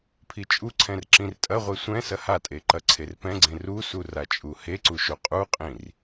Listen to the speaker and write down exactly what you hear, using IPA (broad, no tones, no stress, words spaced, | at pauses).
pʰit͡ʃʼuǀʰɛ̃r ǁĩrtʼɐʁʷe sʷɛ̃ sɐhatʼe ǃɐǀʰerpɛ̃ɡ͡ǀẽ rusu rat͡ʃʼuheǀu ʃoqʼuqʼĩr